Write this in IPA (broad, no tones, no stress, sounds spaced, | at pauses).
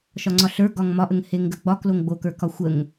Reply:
ʃ ɒ ŋ͡ǀ ɒ ɬ ə˞ ɡ ɒ ŋ m ɒ ʔ ə ŋ h e ŋ ɡ ə ɡ͡b ɒ k l o ŋ ɡ͡b o k ə˞ k ɒ xʷ ə ŋ